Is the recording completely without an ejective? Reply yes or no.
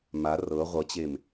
yes